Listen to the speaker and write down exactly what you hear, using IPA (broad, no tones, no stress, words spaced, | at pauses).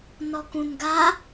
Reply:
nɔkũnɡa